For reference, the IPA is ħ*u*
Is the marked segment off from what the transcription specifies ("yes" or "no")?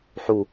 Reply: no